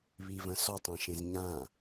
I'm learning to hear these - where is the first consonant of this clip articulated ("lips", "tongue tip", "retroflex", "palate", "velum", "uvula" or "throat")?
lips